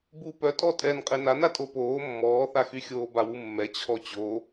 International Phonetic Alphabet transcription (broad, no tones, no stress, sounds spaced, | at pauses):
b u p œ tʼ ɔ tʼ ɛ n qʼ e n a n a tʼ o p oː mː ɔː θ a x y xʲ oː b a w u mː ɛ t͡ɕʰ ɔ t͡ɕ o